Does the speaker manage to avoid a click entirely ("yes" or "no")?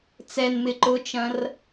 no